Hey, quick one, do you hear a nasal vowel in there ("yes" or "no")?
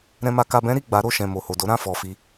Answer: yes